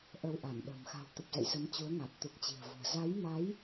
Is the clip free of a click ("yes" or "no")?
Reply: yes